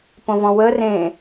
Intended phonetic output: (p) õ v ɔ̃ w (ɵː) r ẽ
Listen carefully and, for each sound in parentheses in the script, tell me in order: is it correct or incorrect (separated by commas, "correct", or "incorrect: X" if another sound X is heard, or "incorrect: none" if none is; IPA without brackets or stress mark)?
correct, incorrect: əː